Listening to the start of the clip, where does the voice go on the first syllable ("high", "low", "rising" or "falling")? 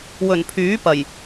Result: low